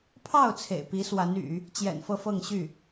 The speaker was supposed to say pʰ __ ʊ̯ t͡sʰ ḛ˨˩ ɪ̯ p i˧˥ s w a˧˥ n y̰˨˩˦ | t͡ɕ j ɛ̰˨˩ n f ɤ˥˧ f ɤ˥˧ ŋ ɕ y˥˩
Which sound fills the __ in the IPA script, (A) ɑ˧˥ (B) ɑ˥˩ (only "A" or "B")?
B